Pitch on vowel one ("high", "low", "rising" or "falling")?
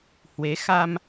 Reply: rising